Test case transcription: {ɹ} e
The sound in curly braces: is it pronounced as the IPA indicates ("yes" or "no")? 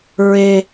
yes